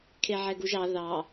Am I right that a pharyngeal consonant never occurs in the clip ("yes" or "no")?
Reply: no